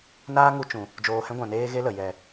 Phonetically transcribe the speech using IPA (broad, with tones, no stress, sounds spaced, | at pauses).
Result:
n aː˦ ŋ u˧ t͡ʃ ũ˨ | d͡ʒ oː˨ h ɛ̃˧ ɡʷ ã˨ n eː˧ ɣ e˦ l ə˨ j ɛ˨